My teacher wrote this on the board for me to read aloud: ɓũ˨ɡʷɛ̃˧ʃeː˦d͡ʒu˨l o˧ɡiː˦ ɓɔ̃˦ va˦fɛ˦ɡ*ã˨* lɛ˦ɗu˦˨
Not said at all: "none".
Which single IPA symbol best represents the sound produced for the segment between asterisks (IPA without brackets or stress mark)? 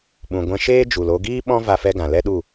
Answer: ã˨